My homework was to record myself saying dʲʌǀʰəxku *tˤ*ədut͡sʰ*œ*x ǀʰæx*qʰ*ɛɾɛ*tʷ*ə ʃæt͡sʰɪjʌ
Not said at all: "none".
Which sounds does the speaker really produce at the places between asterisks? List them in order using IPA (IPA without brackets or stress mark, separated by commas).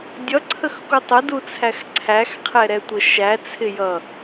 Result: tˤ, æ, qʰ, tʷ